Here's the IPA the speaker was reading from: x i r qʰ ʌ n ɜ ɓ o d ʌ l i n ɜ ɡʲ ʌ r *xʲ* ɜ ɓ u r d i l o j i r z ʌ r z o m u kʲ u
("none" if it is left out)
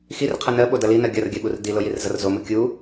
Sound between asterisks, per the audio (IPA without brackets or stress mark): ɡʲ